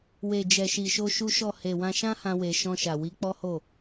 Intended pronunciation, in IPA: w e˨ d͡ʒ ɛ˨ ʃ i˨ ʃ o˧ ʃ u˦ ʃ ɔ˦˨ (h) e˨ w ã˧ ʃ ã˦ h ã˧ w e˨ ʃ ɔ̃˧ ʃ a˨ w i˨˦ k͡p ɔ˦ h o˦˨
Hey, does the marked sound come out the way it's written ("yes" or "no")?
yes